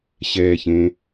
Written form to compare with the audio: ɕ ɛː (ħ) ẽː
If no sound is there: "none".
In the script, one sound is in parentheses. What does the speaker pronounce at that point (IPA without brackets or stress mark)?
ç